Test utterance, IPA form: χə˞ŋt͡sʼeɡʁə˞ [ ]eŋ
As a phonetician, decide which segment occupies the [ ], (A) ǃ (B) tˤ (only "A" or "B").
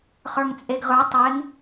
B